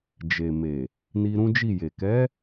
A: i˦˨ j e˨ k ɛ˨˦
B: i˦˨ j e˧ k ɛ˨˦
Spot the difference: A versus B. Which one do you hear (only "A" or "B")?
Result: A